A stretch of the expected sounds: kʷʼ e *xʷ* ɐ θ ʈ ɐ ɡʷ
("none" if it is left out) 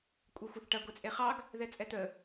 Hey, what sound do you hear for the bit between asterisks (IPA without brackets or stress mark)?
xʷ